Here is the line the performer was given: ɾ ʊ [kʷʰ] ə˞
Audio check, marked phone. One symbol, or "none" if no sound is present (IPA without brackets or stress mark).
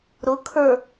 kʰ